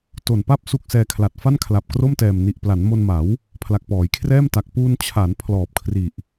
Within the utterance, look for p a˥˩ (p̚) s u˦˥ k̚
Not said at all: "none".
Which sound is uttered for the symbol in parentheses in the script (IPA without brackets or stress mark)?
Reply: p̚